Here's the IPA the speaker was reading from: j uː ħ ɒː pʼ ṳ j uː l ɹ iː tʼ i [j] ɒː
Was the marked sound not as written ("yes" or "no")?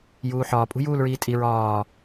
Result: yes